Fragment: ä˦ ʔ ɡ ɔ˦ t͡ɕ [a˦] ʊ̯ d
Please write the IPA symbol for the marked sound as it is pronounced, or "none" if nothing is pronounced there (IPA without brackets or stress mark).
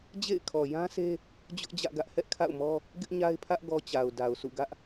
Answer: a˨